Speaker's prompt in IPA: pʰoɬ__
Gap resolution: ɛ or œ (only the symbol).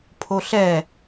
ɛ